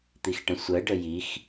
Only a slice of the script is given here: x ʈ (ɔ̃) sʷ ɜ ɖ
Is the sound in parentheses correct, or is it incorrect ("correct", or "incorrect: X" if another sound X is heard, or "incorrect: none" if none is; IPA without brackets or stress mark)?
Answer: incorrect: ə̃